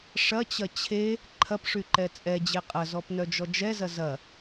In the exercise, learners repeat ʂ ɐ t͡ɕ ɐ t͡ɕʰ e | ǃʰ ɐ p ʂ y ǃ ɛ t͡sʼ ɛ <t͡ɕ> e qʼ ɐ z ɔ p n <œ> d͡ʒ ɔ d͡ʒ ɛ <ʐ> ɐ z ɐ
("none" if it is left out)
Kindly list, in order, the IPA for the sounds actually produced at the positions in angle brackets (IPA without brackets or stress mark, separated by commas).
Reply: d͡ʑ, œ, z